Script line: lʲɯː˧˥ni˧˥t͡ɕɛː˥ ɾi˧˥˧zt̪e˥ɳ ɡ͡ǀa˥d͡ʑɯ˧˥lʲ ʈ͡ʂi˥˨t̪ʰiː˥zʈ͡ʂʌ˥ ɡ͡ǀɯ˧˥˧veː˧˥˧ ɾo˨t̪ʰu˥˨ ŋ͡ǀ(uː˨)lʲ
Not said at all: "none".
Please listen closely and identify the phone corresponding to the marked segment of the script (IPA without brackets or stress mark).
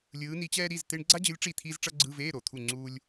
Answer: uː˥